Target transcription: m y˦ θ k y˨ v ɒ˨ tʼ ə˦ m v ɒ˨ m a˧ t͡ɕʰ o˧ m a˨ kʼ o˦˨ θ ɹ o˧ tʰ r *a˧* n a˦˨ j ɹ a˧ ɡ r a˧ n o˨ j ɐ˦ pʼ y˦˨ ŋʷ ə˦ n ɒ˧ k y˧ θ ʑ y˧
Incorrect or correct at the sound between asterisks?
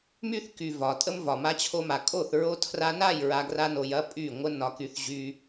correct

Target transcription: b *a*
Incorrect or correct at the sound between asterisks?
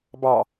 incorrect: ɑ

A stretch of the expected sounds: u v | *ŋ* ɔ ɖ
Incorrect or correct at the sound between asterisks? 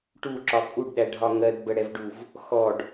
incorrect: x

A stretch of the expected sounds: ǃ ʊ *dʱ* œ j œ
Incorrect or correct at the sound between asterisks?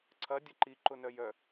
incorrect: n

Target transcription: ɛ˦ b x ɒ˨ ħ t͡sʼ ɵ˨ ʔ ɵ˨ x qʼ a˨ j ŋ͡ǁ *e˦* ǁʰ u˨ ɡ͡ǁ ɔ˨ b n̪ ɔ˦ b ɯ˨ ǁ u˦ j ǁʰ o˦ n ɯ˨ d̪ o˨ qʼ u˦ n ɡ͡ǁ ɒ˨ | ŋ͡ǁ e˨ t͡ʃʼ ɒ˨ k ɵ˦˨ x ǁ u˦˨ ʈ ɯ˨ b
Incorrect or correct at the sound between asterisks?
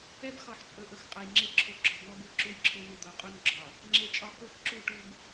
correct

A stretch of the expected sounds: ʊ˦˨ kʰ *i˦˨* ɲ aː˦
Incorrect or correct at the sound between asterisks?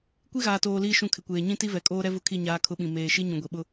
correct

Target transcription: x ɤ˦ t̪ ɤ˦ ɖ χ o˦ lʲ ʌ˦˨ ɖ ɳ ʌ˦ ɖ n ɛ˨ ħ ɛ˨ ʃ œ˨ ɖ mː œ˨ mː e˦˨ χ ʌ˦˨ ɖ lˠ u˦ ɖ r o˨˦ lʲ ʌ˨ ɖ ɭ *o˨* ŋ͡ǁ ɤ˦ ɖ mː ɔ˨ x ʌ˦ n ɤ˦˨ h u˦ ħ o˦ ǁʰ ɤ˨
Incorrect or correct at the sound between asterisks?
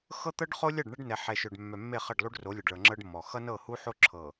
incorrect: ɤ˨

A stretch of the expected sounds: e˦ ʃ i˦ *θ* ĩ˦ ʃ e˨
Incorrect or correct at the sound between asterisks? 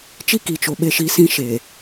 incorrect: s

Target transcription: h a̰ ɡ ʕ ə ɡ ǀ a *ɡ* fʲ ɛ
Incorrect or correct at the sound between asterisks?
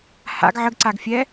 correct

